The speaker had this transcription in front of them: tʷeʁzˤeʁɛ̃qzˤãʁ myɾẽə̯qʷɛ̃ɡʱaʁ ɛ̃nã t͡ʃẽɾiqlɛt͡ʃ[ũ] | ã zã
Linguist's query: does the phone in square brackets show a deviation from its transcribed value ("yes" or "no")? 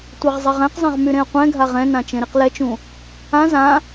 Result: no